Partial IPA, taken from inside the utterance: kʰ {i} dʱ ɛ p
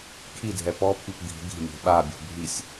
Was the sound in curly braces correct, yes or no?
yes